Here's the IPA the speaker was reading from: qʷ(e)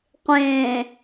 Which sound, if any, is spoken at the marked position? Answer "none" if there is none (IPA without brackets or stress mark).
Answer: ẽ